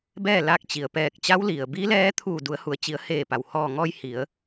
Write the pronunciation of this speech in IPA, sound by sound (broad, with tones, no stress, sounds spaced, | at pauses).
b ɛː˥˨ l a˧˥ k̚ t͡ɕ i˩ ə̯ p ɛː˧˩ k̚ t͡ɕ a˧˥ w l i˩ ə̯ b i˧˥ l ɛː˧˥ t̪ʰ uː˧˩ d u˩˧ ə̯ h u˩ ə̯ t͡ɕ i˩˧ ə̯ h eː˧˩ p a˩ w h ɔː˧˩ ŋ ɔː˧ j h i˩˧ ə̯